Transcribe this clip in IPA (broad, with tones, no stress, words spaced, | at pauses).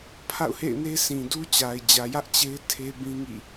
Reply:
pʰa̰˦˨ʊ̯hḛ˦˨ɪ̯ne˦ sĩ˨du˦t͡ɕa˨ɪ̯ d͡ʑä˨jä˦ʔ t͡ɕe˦ɪ̯ tʰe˦bĩ˦ŋḭ˦˨